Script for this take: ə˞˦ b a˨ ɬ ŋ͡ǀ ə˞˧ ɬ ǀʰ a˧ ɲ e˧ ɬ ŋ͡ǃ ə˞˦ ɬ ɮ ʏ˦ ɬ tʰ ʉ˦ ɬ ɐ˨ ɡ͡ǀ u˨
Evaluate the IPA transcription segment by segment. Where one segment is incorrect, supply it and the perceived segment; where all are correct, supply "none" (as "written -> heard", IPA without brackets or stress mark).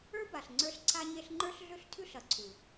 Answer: ɡ͡ǀ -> ǀʰ